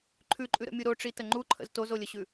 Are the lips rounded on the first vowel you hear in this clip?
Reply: yes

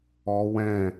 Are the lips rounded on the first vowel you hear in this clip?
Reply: yes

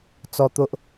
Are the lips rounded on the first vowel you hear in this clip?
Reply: yes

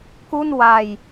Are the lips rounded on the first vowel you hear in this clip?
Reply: yes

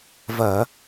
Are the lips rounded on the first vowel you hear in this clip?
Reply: no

